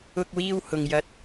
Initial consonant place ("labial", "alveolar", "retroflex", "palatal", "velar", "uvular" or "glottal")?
velar